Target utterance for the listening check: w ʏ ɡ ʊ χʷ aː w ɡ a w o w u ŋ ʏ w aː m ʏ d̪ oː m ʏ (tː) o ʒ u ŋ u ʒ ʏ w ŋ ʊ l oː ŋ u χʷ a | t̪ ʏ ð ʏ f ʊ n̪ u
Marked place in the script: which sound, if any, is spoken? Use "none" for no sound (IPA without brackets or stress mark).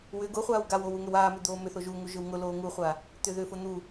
θ